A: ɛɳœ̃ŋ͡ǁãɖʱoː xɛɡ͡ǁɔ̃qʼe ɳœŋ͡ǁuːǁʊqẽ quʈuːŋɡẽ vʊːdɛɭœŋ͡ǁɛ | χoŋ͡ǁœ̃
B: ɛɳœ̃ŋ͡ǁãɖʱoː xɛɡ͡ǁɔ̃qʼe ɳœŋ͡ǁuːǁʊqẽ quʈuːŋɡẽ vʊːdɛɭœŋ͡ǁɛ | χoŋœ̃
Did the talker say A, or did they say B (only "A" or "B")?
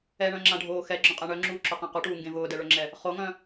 B